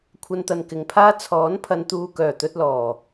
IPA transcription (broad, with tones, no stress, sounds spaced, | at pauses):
kʷʰ ɐ˧ n t̪ ɐ˨ n k ɪ˨ ŋ pʰ aː˥ t͡sʰ ɔː˨˥ n pʰ ɐ˨˧ n t̪ uː˨ k œː˨˩ t̪ ɵ˧ t̚ l ɔː˨˩